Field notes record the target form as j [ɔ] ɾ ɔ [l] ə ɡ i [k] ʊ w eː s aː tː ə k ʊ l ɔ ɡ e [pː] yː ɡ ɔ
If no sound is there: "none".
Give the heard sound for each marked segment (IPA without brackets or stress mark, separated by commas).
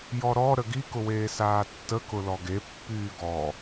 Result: ɔ, ɾ, k, pː